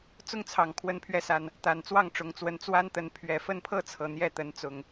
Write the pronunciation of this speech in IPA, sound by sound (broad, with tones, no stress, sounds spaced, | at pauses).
t͡s ʊ˦ ŋ t͡sʰ ɑ˨˩ ŋ kʰ w ə˨˦ n pʰ ɥ ɛ˨˦ s a˨˩ n | t̪ a˨˩ n t͡s w ɑ˥˨ ŋ ʈ͡ʂ ʊ˨˦ ŋ t͡s w ə˨˦ n t͡s w a˦ n t̪ ə˨˦ n pʰ ɥ ɛ˨˩ f ə˥˨ n pʰ ɤ˥˨ t͡sʰ ɤ˨˩ n̪ j ɛ˥˨ t̪ ə˨˦ n t͡s ʊ˨˩ ŋ